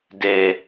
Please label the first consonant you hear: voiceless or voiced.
voiced